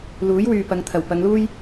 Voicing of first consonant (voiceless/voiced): voiced